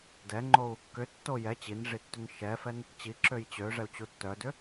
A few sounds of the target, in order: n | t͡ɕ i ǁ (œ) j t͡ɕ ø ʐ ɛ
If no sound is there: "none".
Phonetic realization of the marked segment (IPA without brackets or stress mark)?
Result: ø